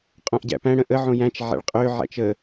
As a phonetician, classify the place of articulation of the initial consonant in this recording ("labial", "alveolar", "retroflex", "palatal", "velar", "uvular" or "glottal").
uvular